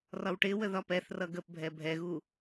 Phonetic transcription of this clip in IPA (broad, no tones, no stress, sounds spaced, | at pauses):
r ɒ w ʈ ɪ w ə ð ɒ p ɛ θ r ʌ ɡ ə p bʱ ɛ bʱ ɛ ɣ u